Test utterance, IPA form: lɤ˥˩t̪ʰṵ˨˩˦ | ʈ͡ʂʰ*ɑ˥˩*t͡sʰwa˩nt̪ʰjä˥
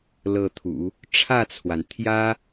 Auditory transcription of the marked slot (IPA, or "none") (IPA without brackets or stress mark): ä˥˩